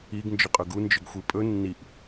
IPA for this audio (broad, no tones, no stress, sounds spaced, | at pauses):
i ɡ n d͡ʒ ʏ qʼ ɵ ɡ u n d͡ʒ ʏ ɡ xʷ i pʼ ɵ nː i ʔ